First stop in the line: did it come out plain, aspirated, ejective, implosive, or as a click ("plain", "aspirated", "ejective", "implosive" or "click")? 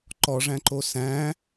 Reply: click